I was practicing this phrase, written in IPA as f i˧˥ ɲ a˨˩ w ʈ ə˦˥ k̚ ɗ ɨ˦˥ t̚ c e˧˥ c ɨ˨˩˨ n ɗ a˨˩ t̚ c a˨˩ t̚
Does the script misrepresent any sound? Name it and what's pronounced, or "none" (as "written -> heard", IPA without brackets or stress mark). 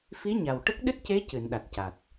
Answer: none